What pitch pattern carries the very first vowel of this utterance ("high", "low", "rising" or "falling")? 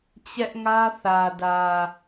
high